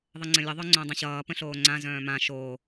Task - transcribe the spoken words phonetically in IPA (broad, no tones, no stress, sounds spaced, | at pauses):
ðˤ ə ŋ͡ǀ ə̃ lʲ ə ðˤ œ ŋ͡ǀ õ dˤ ə̃ ɕ ʌː p ə̃ ɬ oː ŋ͡ǀ ã z œ̃ː m ã ʃ oː